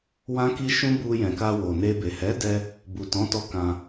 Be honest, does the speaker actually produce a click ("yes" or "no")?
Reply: no